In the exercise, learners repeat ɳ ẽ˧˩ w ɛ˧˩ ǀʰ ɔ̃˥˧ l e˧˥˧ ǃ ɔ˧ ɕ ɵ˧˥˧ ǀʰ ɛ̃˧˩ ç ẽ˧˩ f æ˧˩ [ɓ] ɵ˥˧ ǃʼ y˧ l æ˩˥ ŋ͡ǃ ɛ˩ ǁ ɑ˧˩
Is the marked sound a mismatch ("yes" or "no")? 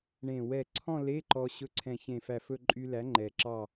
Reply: yes